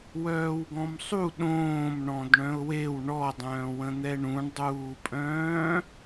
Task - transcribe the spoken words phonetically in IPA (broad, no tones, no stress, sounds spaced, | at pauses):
w œː w ɡ ɔ̃ m sˤ u ɗ õː m ɳ ɔ̃ d ɳ œ̃ ʊ̯ w e w ɳ ɔ dˤ œ̃ː w ə̃ n̪ ɛ ɳ ũ ɳ dˤ uː pʼ œ̃ː